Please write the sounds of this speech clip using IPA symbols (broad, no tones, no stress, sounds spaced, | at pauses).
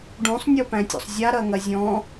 ɖ ũ sˤ nʲ o p æ̃ tʲ o̰ sˤ zʲ a ɾ ɐ ŋ ɐ zʲ ɔ̃